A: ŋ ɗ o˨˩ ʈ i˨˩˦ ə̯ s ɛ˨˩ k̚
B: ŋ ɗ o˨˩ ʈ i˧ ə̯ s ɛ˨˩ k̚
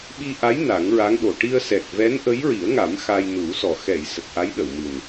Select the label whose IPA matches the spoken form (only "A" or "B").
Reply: B